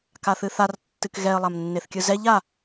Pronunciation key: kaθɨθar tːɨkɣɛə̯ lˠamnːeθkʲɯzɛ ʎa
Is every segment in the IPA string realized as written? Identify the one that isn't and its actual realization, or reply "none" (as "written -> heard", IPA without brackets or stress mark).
none